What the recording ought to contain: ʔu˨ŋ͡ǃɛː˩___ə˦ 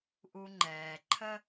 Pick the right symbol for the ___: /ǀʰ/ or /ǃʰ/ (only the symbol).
ǃʰ